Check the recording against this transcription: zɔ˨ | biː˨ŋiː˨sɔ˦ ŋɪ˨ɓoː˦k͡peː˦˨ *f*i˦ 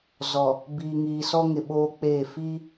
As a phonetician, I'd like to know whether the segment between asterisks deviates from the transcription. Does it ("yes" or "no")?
no